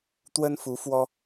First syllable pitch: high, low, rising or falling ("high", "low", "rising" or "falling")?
high